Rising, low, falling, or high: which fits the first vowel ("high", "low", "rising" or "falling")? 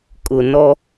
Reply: low